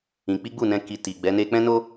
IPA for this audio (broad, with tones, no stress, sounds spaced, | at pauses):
ĩ˧ k͡p i˦ ɡ͡b u˦˨ n ɛ̃˧ k i˨ t i˨ ɡ͡b ɛ˨˦ n e˧ k͡p ɛ̃˦ n o˦